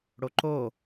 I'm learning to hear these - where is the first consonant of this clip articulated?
retroflex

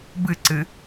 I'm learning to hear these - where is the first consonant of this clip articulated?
lips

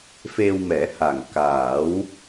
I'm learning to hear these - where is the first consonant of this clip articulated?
lips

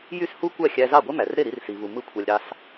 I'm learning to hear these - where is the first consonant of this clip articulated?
palate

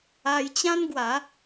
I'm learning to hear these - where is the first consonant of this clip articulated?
palate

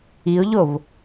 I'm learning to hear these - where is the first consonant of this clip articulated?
palate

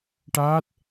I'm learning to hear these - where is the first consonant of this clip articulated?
retroflex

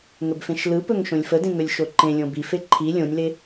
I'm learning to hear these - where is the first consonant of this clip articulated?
velum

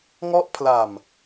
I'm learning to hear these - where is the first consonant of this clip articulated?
velum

